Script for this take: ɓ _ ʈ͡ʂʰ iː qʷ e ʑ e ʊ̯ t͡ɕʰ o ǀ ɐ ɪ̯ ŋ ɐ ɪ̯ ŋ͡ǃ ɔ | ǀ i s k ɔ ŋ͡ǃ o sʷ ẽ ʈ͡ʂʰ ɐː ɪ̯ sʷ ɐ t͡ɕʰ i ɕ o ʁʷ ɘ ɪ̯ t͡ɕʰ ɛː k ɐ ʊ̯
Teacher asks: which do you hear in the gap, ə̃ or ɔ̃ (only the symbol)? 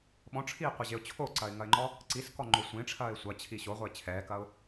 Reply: ɔ̃